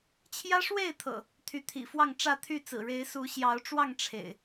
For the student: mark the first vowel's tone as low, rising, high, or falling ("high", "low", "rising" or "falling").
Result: high